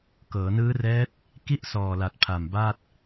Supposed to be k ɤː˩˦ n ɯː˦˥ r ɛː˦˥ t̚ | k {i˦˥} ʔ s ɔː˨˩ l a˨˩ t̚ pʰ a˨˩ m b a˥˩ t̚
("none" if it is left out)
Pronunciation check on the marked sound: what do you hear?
i˥˩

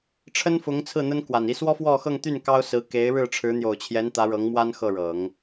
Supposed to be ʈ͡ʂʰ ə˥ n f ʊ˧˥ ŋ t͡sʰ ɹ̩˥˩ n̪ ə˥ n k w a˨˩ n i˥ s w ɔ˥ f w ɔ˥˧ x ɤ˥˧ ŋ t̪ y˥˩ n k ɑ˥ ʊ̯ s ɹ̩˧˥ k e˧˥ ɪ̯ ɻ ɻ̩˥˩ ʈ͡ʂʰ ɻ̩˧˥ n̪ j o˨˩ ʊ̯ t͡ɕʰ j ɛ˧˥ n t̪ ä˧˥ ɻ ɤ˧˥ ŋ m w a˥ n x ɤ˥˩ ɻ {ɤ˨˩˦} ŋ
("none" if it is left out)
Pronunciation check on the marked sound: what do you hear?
ɤ˨˩˦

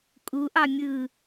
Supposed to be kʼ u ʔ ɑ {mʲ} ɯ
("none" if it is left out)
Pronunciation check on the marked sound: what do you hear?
mʲ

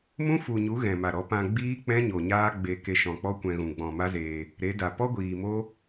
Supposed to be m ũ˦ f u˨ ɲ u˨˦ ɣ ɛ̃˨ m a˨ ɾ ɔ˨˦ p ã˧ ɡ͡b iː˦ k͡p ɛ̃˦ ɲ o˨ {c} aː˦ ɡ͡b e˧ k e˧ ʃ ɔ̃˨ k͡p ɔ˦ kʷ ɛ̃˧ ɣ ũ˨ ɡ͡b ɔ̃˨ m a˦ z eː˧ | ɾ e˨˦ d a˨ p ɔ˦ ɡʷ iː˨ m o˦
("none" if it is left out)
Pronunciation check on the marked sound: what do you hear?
ɲ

